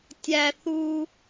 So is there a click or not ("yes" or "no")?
no